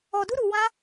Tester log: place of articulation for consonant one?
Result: alveolar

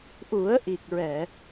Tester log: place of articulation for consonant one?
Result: glottal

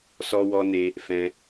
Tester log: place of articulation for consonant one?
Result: alveolar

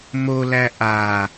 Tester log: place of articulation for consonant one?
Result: labial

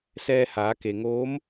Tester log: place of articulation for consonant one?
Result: alveolar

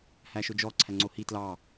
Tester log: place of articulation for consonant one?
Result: glottal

